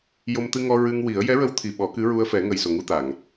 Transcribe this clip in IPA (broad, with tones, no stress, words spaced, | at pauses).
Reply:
jo˧mt̪ɨ˧ŋɔ˧ ɹɨ˧ŋwi˨˩˦ə̯ jɛ˧˥ɹə˧˥w t̪ʰi˨˩ɓɔ˨˩˦kɨ˧˥ ɹu˧ə̯fɛ˨˩˦ ŋə˨˩j so˨˩ŋu˧t̪a˨˩˨ŋ